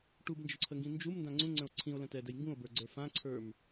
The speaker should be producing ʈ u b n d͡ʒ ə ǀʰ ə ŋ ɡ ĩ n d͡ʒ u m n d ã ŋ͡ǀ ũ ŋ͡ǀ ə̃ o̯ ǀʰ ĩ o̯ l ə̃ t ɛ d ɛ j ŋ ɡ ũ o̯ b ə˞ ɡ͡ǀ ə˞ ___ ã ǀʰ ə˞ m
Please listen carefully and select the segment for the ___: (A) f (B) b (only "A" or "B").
A